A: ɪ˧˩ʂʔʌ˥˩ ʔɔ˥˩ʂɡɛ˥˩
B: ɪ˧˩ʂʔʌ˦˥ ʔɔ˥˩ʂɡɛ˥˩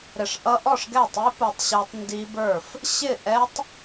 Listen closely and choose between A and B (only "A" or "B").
B